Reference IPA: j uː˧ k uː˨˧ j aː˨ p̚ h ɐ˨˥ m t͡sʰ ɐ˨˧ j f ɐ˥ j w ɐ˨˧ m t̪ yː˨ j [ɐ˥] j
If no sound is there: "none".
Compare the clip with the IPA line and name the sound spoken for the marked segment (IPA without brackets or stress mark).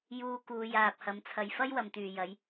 ɐ˨˥